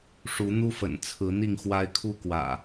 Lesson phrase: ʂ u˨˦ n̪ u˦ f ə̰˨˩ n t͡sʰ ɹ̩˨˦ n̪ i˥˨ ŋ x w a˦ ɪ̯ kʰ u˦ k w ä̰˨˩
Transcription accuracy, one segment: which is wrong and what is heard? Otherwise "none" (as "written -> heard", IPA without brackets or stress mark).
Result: none